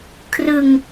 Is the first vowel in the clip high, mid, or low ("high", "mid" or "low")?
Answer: high